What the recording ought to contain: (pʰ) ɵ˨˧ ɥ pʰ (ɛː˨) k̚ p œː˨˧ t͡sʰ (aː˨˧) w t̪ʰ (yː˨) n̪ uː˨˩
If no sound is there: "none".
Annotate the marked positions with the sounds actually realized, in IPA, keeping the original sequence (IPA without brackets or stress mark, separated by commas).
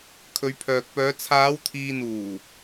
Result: kʰ, œː˨, aː˨˧, iː˨